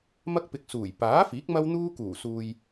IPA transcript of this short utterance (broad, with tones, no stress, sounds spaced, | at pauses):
m ɐ˥ k̚ p ɪ˧ k̚ s uː˨˩ j p aː˨˥ f iː˨˥ k̚ m ɐ˥ w n̪ uː˥ k uː˨˩ s uː˨ j